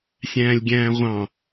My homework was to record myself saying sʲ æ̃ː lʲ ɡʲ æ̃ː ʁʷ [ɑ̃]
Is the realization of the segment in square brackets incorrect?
no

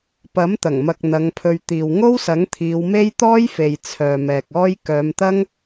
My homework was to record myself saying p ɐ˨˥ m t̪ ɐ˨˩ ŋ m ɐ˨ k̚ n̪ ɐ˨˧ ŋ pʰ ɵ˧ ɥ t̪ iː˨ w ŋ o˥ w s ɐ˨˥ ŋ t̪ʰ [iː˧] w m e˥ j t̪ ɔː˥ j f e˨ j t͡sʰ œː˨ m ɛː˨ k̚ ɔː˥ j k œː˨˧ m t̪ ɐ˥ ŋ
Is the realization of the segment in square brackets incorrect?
yes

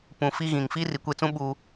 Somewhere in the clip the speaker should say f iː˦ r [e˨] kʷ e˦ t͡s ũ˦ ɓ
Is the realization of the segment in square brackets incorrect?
yes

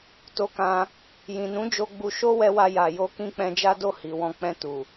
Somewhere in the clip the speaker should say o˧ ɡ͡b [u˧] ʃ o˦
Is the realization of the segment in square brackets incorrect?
no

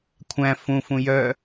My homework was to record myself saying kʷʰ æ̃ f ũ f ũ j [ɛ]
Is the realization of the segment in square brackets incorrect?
yes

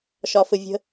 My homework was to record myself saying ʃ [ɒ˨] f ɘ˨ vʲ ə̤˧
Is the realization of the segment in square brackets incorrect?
no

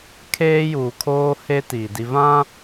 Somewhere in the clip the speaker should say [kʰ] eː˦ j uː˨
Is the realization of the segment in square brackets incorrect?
no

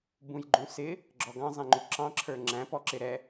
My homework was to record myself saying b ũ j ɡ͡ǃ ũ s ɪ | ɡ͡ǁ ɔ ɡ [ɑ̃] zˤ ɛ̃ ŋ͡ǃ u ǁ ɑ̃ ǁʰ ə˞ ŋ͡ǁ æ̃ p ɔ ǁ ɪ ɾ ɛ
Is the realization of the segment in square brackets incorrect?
no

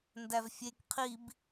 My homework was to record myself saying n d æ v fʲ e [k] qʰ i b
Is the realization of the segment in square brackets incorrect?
no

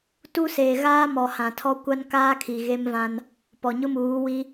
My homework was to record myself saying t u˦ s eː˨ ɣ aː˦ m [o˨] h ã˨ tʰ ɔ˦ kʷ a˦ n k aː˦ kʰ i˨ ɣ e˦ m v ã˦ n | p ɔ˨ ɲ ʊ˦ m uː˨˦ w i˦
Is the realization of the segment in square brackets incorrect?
yes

